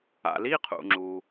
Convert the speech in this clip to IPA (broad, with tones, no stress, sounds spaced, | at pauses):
a̰˩ l i˧˥˧ qʰ ṵ˩ ŋ͡ǁ u˩